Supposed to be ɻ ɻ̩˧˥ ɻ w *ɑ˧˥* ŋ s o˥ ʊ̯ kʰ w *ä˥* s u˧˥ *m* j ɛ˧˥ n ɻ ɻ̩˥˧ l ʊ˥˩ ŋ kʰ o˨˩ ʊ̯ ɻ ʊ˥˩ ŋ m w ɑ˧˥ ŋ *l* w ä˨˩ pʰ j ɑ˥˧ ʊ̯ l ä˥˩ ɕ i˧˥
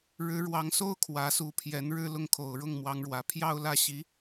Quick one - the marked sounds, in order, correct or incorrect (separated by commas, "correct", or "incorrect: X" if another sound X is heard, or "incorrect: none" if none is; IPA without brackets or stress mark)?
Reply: correct, incorrect: ä˧˥, incorrect: pʰ, incorrect: ɻ